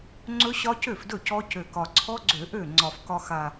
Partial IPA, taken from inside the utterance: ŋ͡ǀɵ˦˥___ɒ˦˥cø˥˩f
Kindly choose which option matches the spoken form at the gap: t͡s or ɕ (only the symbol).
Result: ɕ